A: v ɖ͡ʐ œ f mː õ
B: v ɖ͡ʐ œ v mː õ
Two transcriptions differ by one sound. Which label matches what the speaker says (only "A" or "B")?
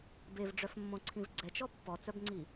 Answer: A